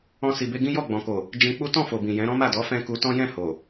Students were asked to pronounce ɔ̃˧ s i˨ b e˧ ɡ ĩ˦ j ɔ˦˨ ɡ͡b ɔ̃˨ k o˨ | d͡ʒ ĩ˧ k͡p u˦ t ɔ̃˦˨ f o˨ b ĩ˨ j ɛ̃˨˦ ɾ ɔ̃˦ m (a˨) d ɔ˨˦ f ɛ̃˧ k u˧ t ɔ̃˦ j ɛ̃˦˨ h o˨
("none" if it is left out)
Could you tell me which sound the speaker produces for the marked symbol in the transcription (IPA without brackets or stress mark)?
a˦˨